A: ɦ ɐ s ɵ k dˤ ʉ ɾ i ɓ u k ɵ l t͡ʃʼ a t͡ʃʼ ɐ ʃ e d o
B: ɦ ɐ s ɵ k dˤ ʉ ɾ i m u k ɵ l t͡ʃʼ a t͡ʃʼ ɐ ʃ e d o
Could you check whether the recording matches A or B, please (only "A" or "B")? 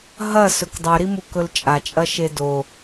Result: B